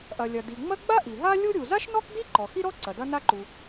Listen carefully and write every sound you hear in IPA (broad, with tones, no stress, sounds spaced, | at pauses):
ʔ ɐ˩ lʲ ɐ˩ d i˩ ŋ͡m ɐ˥ ɡ͡b a˥ ʔ i˩ ɦ a˥ lʲ u˥ ɾʲ u˩ z a˥ ʃ n ɔ˥ k d i˥ ǃ ɔ˩ x i˥ ɾ ɔ˥ ǀ ɐ˩ d ɐ˥ n a˥ ǃ u˩